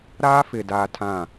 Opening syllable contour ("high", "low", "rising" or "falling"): high